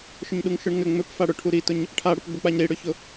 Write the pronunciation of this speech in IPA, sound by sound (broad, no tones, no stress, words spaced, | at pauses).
ʃʏɲɗuŋʃʊɳŋʏ ŋ͡mʏpfa ɽʊ ʈʰuɾitʊɲ | ʈʰaɽʊpɡ͡bʊk͡paɲ ɾiɽʏçʊ